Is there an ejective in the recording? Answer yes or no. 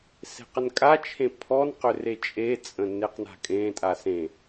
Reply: yes